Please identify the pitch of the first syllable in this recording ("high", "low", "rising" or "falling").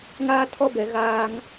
high